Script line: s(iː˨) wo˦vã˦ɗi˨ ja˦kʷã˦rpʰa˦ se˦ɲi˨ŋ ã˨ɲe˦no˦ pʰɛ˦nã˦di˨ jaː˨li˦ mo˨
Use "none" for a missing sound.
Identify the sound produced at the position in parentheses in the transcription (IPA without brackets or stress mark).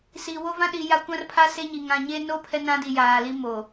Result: i˨